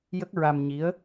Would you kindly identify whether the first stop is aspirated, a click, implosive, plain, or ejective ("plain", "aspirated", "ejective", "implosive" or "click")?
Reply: plain